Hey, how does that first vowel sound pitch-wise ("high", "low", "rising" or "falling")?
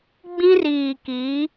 high